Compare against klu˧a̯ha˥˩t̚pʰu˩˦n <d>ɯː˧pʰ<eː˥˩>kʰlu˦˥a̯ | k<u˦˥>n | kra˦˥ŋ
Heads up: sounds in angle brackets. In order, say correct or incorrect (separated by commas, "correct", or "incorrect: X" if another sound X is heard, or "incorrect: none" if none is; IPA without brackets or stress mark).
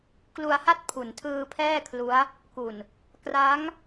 incorrect: tʰ, incorrect: ɛː˥˩, incorrect: u˨˩